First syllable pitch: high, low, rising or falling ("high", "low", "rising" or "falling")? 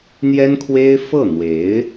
high